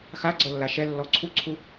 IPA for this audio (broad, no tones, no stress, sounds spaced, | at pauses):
x a ɡ͡ǀ ɤ lː a ʃ ɛ lː ɔ ǀʰ u ǀʰ u